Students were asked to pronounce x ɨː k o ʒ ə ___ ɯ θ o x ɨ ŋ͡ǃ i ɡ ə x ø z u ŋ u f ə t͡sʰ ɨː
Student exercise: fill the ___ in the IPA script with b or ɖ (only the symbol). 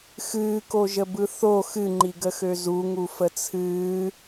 b